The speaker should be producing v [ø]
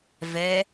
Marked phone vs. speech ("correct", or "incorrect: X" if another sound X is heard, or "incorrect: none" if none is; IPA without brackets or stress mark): incorrect: ɛ